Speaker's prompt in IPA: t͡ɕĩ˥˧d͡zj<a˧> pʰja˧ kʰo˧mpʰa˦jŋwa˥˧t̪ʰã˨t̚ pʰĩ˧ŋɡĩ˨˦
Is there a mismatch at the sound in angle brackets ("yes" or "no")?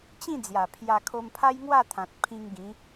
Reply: yes